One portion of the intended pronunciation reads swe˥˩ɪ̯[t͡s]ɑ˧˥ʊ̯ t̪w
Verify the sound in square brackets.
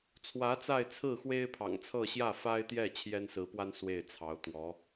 incorrect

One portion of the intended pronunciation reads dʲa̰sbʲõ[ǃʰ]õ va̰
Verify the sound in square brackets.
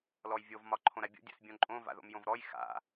incorrect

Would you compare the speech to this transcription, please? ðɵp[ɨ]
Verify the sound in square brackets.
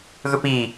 incorrect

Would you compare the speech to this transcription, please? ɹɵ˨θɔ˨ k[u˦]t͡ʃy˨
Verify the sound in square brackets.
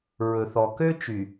incorrect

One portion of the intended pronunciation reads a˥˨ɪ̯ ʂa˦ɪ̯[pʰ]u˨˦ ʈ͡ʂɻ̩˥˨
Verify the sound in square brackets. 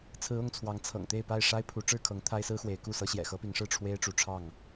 correct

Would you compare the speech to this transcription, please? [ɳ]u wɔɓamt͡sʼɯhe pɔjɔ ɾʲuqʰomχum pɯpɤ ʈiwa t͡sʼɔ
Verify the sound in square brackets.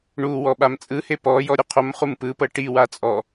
correct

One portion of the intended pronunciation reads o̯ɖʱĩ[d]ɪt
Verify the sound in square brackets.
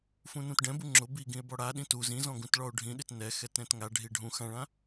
incorrect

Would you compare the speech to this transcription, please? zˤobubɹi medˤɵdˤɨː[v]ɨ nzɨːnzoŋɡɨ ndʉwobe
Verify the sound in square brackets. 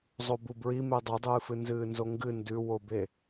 incorrect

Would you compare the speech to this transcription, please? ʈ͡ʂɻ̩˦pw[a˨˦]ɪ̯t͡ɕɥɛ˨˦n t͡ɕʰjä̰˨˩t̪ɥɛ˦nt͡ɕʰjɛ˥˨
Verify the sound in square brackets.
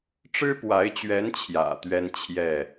correct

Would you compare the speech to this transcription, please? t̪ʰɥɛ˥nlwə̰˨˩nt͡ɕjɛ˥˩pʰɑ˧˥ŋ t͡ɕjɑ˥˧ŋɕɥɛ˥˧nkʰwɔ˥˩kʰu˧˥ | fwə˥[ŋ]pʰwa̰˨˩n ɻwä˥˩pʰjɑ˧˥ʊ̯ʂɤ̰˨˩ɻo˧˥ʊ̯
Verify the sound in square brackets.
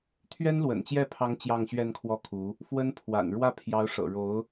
incorrect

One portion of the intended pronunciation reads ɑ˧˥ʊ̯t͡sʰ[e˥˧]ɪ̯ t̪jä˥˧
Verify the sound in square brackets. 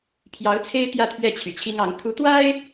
incorrect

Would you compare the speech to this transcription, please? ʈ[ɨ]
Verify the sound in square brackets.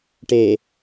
incorrect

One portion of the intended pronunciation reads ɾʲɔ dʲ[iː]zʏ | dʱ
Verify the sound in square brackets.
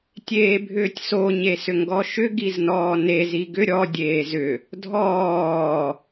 incorrect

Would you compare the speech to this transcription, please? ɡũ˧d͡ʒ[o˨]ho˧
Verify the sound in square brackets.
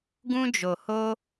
correct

